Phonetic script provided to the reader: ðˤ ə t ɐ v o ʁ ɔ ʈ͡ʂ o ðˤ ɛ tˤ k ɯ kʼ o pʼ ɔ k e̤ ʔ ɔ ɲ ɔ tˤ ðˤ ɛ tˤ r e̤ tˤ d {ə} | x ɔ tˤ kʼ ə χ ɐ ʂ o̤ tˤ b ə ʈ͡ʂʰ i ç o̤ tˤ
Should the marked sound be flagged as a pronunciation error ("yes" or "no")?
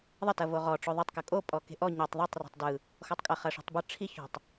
yes